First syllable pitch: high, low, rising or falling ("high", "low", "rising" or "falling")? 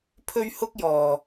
high